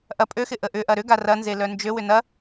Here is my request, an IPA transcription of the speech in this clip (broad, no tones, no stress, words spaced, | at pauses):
ʔɐ pʼøxɪ ʔəʔʏʔɐ ɾʏɡa rɐnze lœnd͡ʒøwʏ nɐ